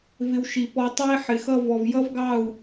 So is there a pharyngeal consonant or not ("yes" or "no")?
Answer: yes